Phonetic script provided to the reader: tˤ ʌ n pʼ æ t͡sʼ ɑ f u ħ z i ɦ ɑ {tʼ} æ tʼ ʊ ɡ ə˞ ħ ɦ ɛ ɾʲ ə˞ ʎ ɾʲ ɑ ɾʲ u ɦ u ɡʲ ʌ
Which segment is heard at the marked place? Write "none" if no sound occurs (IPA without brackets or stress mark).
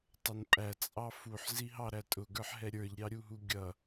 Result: ɾ